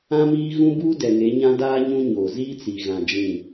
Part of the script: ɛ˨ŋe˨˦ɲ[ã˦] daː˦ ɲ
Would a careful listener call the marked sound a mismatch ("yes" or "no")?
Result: no